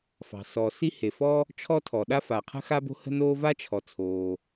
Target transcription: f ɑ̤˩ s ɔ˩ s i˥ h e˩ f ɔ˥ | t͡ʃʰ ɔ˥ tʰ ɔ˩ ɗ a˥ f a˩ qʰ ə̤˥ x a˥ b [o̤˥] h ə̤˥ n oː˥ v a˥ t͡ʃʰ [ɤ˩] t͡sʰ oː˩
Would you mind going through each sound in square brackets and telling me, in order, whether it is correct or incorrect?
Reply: correct, incorrect: ɔ˩

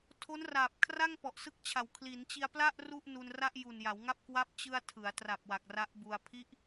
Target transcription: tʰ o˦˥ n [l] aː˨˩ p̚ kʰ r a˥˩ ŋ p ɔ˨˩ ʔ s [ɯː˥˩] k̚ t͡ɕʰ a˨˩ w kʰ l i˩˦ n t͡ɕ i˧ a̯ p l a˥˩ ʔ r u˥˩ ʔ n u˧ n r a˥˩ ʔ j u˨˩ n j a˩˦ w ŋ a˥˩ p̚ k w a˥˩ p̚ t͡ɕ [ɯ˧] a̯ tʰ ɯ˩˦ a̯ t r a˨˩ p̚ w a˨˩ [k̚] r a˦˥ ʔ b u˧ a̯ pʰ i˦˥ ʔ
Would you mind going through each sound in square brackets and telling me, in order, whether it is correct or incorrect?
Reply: incorrect: r, incorrect: ɯ˥˩, correct, correct

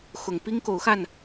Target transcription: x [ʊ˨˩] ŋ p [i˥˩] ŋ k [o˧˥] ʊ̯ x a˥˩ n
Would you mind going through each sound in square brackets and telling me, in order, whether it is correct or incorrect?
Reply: correct, incorrect: i˥, incorrect: o˨˩

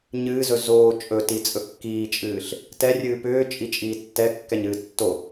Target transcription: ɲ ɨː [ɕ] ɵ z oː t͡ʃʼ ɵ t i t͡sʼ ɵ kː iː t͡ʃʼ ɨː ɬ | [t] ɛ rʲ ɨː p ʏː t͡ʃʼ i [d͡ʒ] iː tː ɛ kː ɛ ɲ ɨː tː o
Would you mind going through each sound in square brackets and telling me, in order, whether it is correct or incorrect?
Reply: incorrect: z, correct, incorrect: t͡ʃʼ

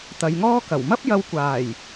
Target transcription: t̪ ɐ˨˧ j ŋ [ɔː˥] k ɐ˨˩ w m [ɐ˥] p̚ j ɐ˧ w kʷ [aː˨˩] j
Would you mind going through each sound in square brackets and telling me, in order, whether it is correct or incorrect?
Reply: correct, correct, correct

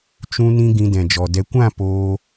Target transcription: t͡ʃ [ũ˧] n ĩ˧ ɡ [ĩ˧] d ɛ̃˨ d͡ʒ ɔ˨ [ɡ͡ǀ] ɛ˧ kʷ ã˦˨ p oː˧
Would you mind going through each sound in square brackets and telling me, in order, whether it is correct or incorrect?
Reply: correct, correct, incorrect: d

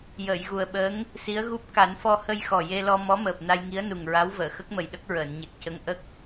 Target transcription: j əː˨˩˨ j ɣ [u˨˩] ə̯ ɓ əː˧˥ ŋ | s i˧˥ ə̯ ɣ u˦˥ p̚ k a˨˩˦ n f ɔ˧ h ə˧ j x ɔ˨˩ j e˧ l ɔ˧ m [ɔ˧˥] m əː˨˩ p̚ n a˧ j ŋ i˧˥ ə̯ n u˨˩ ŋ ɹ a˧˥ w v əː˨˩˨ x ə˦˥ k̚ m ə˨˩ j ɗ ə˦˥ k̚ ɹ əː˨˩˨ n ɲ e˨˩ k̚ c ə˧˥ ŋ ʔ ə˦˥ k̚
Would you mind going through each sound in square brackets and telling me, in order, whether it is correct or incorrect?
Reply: correct, correct

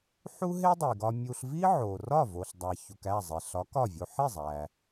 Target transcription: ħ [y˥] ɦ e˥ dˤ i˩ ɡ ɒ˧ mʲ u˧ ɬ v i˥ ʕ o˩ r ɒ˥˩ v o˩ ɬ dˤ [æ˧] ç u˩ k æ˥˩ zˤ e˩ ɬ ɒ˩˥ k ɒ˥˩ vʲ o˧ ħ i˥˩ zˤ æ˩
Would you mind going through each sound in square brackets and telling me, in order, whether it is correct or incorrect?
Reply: incorrect: u˥, incorrect: æ˩

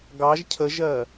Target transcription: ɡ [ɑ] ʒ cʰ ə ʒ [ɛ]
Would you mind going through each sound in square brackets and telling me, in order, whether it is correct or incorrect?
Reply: correct, incorrect: ɜ

